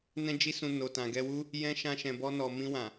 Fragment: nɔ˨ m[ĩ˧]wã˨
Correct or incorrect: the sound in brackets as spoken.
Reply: correct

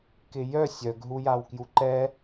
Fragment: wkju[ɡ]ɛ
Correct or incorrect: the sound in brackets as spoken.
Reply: incorrect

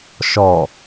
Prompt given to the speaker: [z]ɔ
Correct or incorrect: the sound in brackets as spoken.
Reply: incorrect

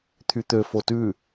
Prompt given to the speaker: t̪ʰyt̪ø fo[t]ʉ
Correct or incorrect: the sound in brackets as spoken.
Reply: correct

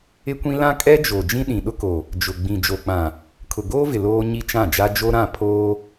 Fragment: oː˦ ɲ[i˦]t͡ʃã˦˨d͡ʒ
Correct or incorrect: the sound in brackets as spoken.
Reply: correct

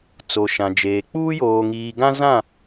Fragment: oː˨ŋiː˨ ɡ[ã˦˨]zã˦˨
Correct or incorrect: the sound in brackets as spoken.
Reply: incorrect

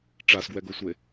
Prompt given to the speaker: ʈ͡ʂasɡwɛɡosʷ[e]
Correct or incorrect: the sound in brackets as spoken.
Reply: correct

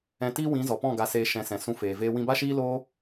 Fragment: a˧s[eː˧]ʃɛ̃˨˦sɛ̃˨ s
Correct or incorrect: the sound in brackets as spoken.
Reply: correct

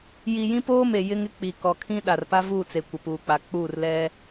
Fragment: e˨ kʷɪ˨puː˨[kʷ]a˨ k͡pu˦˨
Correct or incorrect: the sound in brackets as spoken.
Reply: incorrect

